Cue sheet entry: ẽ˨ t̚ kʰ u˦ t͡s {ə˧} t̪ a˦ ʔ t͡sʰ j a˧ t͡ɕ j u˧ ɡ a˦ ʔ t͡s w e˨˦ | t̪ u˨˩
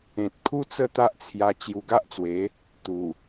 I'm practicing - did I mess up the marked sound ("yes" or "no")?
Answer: yes